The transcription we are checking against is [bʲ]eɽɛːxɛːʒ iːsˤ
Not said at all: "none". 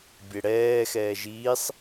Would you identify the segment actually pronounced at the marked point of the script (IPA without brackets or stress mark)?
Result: bʲ